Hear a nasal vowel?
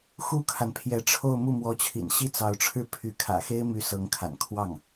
no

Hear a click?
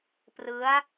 no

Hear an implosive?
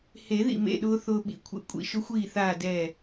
yes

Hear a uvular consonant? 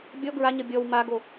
no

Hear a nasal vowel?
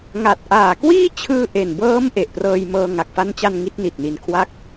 no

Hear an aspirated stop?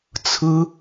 yes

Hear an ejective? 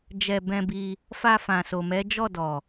no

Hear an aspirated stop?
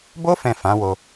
no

